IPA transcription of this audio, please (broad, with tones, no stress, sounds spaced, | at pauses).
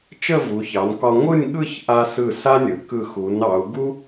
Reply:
t͡ʃ ə˥˧ v u˩˧ ç ɑ˩˧ n k ɒ˧ ŋʷ ɯ˥˧ nʲ ɠ ɯ˥˧ ç ʔ a˧ s ɯ˧˩ s a˥ nʲ ɯ˩˧ k ɯ˧˩ x u˩˧ n ɑ˩˧ u̯ ɡ u˥